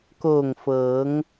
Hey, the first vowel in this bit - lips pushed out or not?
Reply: yes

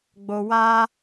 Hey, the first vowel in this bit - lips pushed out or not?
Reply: yes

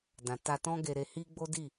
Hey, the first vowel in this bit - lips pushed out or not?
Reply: no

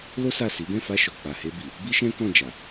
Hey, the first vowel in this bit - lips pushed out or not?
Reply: yes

